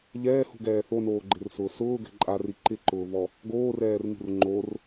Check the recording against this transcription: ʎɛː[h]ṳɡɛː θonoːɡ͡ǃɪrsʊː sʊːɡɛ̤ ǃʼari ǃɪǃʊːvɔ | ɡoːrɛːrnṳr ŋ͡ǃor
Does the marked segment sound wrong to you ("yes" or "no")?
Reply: no